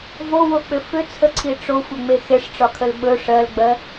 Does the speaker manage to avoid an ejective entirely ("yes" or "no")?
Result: yes